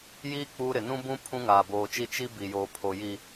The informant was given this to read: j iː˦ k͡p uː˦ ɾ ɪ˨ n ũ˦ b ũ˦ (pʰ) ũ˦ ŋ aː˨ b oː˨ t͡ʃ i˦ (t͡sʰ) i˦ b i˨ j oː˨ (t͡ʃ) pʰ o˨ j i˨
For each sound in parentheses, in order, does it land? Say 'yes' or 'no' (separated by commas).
yes, no, no